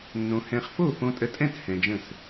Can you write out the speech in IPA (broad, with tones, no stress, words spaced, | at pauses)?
nːõ˧ hɛ̃˧χfo˥˨ fõ˧tʼə˧tʼɛ̃˥˨t hɛ̃˧d͡ʒə̃˥˨s